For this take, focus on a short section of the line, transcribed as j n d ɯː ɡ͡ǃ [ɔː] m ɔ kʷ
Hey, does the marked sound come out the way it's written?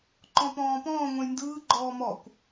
yes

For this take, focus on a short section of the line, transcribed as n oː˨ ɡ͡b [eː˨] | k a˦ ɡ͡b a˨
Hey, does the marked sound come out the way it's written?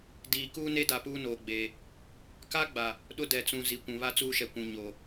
yes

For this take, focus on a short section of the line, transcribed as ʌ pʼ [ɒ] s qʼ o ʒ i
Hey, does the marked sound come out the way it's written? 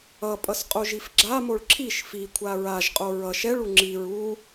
no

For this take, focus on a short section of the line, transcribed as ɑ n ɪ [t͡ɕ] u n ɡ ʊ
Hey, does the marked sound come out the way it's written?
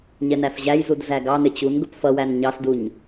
yes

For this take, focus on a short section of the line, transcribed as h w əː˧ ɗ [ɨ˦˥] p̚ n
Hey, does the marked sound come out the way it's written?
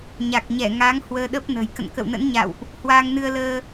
no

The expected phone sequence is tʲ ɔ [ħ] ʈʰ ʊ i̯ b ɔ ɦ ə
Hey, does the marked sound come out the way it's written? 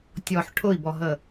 yes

